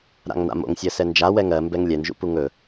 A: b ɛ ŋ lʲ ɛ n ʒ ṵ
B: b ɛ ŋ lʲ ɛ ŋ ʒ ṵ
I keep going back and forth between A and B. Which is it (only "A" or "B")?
A